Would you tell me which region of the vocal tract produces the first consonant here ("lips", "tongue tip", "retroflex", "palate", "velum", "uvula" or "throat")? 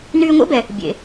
tongue tip